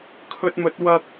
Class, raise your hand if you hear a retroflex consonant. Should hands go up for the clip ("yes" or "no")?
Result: no